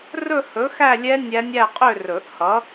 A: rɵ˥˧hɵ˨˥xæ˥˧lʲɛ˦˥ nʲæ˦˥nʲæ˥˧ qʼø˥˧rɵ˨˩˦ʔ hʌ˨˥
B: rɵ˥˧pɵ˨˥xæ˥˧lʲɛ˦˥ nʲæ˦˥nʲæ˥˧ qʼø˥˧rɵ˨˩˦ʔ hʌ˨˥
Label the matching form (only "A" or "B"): A